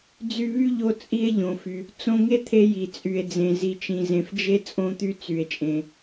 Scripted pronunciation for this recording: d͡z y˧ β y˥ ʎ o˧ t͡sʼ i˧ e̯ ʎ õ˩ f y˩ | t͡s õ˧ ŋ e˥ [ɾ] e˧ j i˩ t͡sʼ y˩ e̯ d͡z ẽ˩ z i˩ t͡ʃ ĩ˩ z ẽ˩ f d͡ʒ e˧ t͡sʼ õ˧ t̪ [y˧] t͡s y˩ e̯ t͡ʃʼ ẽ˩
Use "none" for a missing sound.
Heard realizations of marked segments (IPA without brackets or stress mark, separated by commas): t̪ʰ, y˧